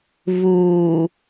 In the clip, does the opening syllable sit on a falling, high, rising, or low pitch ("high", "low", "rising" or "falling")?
low